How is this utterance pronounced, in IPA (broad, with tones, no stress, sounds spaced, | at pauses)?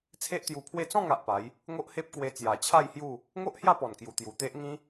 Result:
t͡sʰ e˦ ʔ t̪ j u˧ pʰ w e˥˧ t͡s ɔ̃˥˧ ŋ a˨ ʔ p a˨˦ j | ŋ o˦ ʔ h e˦ p̚ k w e˧ t͡s j a˨˩ t͡ɕʰ a˥˧ j h j u˥˧ | ŋ o˦ ʔ h j a˥˧ p ɔ˨˩ n k j u˨˩ t̪ j u˨˩ t̪ e˦ ʔ ŋ ĩ˦